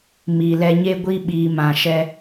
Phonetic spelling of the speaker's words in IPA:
m i˨ l ɛ˧ ɲ e˦ ɡʷ i˦ ɓ iː˨ m ã˨ ʃ ɛ˧

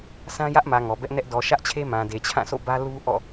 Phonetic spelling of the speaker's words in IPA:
s ã˦ j ä˦ ʔ m ä˨ ŋ ɔ˨ b ɛ˦ ʔ n ɛ˦ ʔ d ɔ˨ ʃ ä˦ ʔ t͡ɕʰ e˦ m ã˨ d e˨ t͡ɕʰ ã˦˨ sʰ o̰˦˨ b ä˦ l u˦ ʔ ɔ̰˦˨

